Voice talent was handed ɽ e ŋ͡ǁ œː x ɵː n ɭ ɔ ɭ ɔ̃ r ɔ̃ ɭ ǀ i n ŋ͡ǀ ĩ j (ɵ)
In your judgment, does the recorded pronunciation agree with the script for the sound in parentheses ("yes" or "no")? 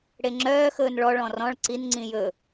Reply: yes